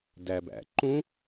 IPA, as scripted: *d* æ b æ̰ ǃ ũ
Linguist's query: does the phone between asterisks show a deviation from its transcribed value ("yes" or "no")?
no